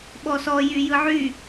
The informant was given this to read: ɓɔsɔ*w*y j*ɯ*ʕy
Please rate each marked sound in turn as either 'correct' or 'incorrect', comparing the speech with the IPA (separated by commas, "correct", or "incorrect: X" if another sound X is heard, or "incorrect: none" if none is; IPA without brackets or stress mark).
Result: incorrect: j, correct